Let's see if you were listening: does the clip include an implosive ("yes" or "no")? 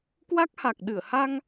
yes